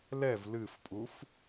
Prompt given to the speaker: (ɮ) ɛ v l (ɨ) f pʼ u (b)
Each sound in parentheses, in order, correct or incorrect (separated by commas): incorrect, correct, incorrect